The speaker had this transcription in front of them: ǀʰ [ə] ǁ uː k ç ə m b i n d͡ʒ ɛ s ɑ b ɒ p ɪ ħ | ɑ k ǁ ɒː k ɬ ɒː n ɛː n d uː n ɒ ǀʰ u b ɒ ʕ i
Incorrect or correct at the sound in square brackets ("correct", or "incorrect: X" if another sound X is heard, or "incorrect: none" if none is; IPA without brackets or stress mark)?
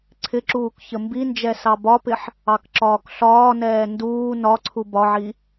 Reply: incorrect: ɪ